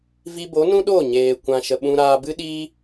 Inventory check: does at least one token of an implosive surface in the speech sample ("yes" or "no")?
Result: yes